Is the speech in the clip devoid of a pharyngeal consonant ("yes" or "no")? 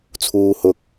yes